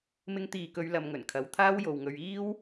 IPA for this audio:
m ɪ˧ ŋ t̪ iː˨ k ɵ˨˧ ɥ l ɐ˨˧ m ŋ ɵ˨˩ n kʰ ɐ˨˥ w t̪ʰ aː˥ w j o˨ w ŋ ɵ˧ ɥ iː˧ w

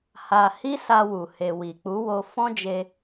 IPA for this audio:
h a˧ h i˦ s a˧ w u˨ h e˨ w i˨ k͡p u˨˦ w o˧ f ɔ̃˦ d͡ʒ e˧

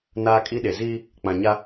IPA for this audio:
n aː˦ kʼ i˦ ɗ e˨ z iː˦ | k͡p ã˨ ɲ a˦

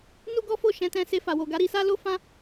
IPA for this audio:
n u˦ ɡ ɔ˦ f o˦˨ ʃ ɛ̃˨˦ t ɛ̃˧ s e˧ f a˨ w o˨ ɡ a˨˦ ɾ i˧ s a˦ l o˦ f ã˦

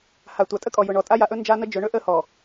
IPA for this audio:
h a˨ tʷ a˨ tʼ ə˦ kʼ ɔ˨ j ʊ˨ ɳ ɔ˨ tʼ a˦ j a˨˦ ʔ ɵ˦ n d͡ʒ a˦ n̪ ə˦ d͡ʒ ɵ˨˦ ɳ ɵ˦ ʔ ə˦˨ h ɔ˨

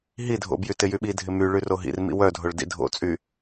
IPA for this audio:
ɦ i dʱ o̰ b j y t ɪ j y ɓ i dʱ ɪ m y ɭ y r o ɦ ḭ r m ḭ w œ dʱ o ɭ d ḭ dʱ o̰ t͡sʼ y

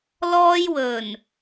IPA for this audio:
l ɔː˥ j w ɵ˨˩ n

